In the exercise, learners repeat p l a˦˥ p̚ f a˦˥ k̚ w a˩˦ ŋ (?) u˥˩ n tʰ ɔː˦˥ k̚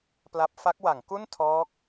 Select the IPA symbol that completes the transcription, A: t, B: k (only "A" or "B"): B